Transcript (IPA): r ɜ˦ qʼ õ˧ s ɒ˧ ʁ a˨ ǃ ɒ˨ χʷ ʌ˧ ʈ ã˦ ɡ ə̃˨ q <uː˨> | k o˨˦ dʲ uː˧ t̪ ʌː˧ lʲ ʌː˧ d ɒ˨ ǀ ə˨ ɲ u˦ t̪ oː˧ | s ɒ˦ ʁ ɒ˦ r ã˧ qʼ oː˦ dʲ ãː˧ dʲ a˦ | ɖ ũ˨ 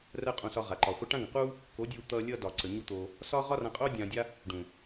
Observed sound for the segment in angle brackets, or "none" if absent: uː˦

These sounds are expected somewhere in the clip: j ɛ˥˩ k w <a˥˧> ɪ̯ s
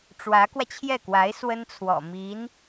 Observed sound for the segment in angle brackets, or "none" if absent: a˧˥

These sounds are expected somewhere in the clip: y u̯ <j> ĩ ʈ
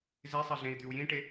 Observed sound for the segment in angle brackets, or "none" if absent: j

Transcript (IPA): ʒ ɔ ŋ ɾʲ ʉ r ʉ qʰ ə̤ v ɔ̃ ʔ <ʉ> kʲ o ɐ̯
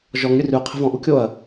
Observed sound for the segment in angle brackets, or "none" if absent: u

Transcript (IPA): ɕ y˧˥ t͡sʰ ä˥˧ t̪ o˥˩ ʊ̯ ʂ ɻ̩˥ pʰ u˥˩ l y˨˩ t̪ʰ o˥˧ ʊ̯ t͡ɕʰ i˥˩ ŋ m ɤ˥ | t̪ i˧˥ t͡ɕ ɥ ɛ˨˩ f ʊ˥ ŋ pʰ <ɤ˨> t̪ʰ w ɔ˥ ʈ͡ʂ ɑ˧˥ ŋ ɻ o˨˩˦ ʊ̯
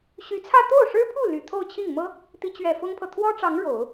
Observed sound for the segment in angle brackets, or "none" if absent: ɤ˨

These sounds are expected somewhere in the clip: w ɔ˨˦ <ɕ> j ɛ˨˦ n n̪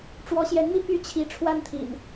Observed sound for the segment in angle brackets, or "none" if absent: ɕ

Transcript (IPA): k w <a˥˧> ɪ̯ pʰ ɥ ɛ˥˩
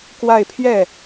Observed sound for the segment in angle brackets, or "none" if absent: a˥˧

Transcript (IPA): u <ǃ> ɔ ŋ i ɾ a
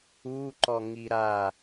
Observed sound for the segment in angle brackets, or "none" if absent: ǃ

